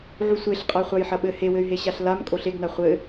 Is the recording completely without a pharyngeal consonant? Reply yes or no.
no